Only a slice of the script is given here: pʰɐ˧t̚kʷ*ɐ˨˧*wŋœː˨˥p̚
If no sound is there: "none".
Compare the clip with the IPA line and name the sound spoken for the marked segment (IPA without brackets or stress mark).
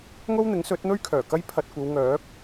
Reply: ɐ˨˧